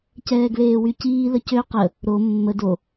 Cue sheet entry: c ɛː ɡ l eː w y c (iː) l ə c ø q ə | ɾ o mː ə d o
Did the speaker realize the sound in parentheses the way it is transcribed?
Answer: yes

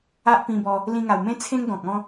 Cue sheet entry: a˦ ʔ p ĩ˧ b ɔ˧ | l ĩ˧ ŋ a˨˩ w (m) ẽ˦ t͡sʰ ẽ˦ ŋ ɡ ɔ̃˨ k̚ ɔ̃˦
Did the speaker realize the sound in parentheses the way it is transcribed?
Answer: yes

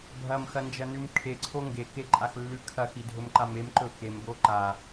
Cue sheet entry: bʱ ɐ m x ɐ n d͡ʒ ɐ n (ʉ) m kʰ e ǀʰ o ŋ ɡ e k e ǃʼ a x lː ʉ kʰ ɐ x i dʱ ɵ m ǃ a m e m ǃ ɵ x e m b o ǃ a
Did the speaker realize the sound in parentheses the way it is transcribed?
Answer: yes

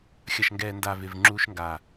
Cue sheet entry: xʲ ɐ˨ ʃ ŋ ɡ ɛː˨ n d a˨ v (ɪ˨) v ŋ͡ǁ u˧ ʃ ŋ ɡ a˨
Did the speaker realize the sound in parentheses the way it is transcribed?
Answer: yes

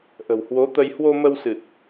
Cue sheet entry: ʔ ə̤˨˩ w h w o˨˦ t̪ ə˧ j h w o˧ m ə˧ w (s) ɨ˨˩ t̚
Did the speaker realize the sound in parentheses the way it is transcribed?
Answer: yes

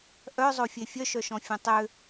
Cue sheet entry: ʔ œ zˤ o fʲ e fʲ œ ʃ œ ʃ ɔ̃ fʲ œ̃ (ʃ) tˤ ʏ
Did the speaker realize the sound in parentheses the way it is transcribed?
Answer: no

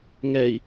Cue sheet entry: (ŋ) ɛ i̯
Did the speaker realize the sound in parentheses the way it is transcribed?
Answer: yes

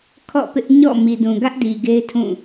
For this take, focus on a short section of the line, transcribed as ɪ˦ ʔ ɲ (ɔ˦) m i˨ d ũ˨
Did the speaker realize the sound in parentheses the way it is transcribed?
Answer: no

